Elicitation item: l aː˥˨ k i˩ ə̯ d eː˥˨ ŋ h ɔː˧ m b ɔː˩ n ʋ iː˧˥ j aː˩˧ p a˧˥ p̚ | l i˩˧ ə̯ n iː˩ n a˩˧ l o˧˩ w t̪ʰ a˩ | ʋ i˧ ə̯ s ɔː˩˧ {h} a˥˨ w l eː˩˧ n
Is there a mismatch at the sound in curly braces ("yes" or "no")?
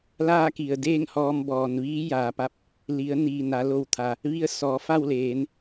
yes